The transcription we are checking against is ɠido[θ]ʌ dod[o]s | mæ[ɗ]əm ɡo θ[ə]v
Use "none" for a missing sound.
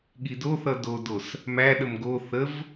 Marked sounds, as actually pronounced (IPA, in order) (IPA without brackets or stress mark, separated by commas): θ, o, ɗ, ə